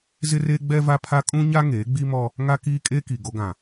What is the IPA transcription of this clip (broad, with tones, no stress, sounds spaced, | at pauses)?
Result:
z ɪ˦ r eː˦ ɡ͡b ɛ˦ v a˦ pʰ a˦ kʼ ũ˦ ɲ a˦ ŋ eː˨˦ ɡ͡b i˦ m ɔ˦ | ŋ a˦ k iː˦ kʼ e˦ k i˨ ɡ o˦ ɡ ã˨